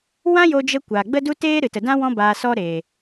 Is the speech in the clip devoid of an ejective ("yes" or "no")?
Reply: yes